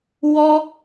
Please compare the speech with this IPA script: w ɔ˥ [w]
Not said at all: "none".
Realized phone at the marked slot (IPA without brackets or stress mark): none